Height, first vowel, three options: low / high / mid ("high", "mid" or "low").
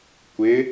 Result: high